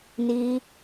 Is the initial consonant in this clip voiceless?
no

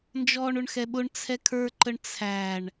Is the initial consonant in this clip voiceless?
no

